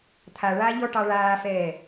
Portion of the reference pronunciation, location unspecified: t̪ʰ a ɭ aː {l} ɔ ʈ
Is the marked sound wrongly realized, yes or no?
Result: yes